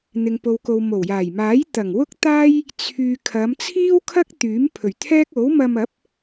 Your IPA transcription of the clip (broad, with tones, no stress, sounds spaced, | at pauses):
n̪ ɪ˨ ŋ p o˨ w k o˨ w m o˨˩ w j aː˨˩ j m aː˨˥ j t̪ ɐ˨˩ ŋ w ʊ˥ k̚ t̪ aː˥ j | t͡sʰ yː˨ kʰ ɐ˨˧ m t͡sʰ iː˥ w kʰ ɐ˥ k̚ t̪ yː˨˥ m pʰ ɵ˨˩ ɥ t̪ʰ ɛː˥ k̚ o˨˥ w m ɐ˧ m ɐ˨˥ p̚